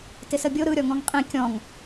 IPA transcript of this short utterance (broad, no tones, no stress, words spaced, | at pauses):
tɪsəbʲo ɾɯ ɾʲɔŋɔ̃ŋqʼĩ kʲɔ̃ŋ